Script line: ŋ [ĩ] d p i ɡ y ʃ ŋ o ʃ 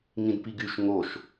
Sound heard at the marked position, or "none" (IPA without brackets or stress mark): ĩ